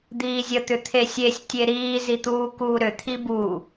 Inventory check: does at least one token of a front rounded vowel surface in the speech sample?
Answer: yes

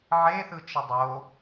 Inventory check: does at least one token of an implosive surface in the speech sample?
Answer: no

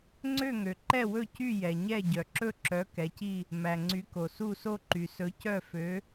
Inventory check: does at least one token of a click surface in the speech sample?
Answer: yes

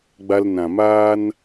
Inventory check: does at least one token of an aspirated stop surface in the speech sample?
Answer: no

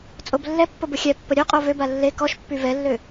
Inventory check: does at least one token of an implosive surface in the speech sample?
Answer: no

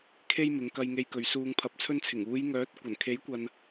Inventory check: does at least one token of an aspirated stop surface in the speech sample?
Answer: yes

